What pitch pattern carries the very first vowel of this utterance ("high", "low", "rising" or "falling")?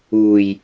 low